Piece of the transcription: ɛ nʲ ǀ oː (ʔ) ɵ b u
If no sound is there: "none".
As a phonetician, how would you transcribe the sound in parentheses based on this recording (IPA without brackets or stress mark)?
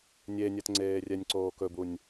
k